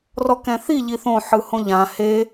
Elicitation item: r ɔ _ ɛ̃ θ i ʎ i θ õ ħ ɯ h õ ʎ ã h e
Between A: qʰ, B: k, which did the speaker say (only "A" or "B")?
B